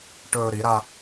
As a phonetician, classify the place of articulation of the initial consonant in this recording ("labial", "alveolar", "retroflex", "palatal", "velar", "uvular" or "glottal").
retroflex